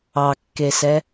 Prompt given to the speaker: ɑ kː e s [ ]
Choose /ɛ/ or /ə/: ɛ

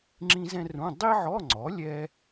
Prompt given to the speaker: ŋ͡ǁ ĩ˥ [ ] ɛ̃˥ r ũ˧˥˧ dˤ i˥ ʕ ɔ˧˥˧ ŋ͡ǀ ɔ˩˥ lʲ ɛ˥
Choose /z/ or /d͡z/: z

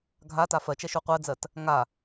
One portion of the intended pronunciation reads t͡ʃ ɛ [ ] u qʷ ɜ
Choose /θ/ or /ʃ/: ʃ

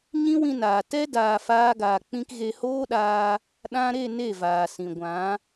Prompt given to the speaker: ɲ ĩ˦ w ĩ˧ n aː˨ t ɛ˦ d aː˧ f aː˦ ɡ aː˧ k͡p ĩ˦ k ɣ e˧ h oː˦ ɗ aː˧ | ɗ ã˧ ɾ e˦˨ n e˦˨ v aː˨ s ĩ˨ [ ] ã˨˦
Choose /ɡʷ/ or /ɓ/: ɡʷ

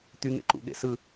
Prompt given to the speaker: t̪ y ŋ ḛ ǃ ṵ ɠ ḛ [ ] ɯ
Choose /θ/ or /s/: s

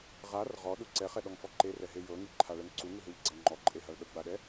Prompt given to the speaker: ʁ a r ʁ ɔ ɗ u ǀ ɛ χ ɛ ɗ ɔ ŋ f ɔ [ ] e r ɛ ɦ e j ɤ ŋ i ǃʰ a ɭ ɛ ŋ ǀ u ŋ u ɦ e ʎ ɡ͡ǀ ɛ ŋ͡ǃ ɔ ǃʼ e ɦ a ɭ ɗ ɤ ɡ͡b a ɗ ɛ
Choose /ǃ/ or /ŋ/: ǃ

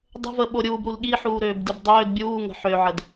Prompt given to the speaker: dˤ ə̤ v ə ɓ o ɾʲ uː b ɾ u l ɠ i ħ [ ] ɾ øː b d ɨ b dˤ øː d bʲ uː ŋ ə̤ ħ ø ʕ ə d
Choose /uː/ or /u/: uː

